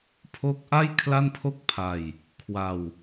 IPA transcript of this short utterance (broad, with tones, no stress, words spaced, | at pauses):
pʰo˦˥k̚ʔa˥˩j kʰla˥˩npʰo˥˩k̚pʰa˧j | kʰwa˧w